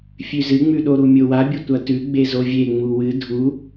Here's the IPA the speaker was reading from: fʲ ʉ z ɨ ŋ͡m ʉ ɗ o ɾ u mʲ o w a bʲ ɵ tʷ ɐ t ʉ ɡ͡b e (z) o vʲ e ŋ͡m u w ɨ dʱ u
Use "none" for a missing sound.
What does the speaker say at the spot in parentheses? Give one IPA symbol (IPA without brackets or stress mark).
z